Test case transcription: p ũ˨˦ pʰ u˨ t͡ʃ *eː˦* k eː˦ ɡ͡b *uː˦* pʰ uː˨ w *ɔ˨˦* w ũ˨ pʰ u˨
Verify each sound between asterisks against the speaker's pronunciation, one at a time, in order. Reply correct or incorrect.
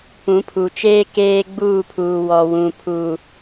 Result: correct, incorrect: uː˦˨, incorrect: ɔ˨

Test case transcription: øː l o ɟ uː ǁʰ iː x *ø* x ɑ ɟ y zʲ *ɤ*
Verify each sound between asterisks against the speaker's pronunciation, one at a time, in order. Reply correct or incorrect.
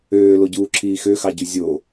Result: correct, incorrect: o

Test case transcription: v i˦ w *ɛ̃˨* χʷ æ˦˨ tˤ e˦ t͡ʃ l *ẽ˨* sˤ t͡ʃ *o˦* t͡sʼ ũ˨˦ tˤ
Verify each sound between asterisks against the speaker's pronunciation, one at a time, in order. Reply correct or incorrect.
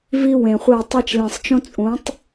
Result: incorrect: ẽ˨, correct, incorrect: õ˦

